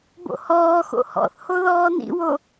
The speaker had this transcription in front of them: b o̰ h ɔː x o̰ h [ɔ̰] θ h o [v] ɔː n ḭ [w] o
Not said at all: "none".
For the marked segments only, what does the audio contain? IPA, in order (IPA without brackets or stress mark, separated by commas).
ɔ̰, ð, w